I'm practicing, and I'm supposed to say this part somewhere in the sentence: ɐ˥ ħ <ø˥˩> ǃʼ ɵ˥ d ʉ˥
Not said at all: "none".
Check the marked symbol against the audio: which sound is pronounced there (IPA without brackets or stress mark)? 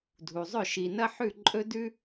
ʉ˥˩